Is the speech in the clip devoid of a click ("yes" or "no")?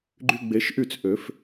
no